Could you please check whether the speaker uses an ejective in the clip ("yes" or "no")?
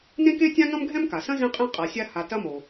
yes